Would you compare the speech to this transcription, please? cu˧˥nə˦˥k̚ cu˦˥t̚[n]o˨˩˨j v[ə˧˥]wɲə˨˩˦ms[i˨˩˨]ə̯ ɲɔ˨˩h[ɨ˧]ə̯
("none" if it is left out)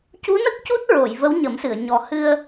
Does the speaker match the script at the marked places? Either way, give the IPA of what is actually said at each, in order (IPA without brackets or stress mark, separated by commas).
ɹ, ə˧˥, ɨ˨˩˨, ɨ˧